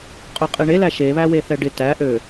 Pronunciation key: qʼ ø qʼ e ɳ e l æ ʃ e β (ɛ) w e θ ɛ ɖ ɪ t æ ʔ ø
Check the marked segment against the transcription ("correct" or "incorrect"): incorrect